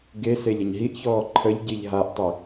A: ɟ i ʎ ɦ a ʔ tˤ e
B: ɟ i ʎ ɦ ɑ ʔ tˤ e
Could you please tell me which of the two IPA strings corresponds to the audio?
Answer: A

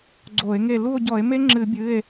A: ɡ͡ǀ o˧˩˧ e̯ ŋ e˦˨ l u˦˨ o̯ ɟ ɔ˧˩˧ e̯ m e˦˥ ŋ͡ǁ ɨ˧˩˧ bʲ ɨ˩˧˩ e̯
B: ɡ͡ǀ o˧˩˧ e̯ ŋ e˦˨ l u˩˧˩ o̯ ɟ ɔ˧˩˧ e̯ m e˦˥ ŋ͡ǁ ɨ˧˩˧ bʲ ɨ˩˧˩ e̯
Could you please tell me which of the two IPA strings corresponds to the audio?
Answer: A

